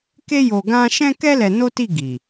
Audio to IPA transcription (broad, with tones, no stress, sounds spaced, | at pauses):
k e˦ j o˧ ɡ ã˦ ʃ ɛ̃˦ k ɛ˦ l ɛ˧ n o˦ t i˦˨ ɡ i˨